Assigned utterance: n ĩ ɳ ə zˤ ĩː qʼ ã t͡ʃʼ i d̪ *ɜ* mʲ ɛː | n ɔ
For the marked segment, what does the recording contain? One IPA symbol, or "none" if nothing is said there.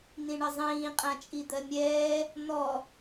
ɜ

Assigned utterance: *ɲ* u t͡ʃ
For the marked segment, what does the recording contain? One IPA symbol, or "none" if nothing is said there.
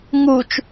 ŋ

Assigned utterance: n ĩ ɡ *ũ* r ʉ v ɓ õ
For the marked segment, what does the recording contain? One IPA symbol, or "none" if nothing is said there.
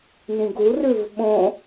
u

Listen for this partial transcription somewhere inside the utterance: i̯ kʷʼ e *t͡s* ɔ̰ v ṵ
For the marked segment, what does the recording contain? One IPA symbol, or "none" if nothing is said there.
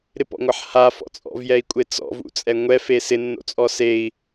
t͡s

